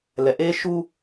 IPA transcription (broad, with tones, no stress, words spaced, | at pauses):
lɛ˨ ʔe˦ ʃu˦